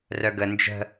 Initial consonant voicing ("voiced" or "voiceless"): voiced